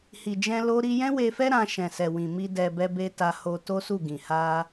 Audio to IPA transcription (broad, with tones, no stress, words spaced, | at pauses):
hi˨d͡ʒɛ̃˧ lo˦ɾi˦ jɛ̃˦we˧fɛ˦ ɾã˧ʃɛ̃˨sɛ˨wĩ˨ mi˧ dɛ˧bɛ˦ be˦ta˧ ho˧to˦ su˦˨ɡĩ˨ ha˧